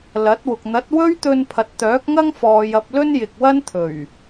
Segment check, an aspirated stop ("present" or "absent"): present